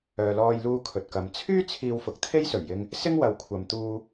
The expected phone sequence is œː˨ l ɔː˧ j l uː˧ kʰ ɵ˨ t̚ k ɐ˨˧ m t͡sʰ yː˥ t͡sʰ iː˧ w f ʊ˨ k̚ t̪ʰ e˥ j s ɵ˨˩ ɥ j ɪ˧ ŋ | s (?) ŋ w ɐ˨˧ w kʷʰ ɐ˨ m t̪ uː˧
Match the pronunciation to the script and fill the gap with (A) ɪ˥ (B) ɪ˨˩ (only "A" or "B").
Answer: A